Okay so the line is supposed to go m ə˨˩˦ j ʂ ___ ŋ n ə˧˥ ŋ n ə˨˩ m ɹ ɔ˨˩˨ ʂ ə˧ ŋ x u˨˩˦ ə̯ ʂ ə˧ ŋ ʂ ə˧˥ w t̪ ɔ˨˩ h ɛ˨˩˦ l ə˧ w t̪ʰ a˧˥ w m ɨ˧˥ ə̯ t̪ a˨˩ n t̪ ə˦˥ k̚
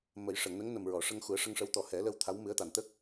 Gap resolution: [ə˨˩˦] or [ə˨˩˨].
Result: ə˨˩˨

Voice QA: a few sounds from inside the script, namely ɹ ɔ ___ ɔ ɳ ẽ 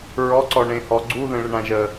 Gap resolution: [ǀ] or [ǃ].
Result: ǀ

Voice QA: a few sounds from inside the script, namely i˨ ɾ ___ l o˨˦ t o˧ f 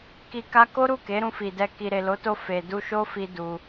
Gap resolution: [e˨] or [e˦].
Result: e˨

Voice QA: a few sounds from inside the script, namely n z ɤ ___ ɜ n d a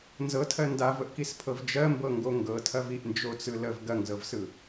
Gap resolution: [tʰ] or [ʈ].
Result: tʰ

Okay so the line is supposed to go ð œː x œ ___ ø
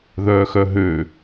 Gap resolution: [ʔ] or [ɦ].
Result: ɦ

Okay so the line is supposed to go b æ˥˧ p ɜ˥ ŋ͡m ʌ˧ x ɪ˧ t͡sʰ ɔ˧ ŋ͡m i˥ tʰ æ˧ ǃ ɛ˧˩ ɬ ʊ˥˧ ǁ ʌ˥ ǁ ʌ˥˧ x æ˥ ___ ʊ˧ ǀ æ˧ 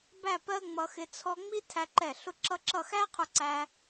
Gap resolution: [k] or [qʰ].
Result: qʰ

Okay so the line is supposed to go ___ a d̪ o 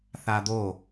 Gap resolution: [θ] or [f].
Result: θ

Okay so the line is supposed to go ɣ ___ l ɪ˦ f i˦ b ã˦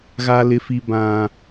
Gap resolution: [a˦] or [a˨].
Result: a˦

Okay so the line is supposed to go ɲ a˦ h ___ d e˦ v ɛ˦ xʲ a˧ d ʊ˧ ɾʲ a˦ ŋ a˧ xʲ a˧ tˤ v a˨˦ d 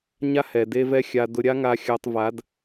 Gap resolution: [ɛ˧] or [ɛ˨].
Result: ɛ˨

